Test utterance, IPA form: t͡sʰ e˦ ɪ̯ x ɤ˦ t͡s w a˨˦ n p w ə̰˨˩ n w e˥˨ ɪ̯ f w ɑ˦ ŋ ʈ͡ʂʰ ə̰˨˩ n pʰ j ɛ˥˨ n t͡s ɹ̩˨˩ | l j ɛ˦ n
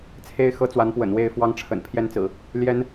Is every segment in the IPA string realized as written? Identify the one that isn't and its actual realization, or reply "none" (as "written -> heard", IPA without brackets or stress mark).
none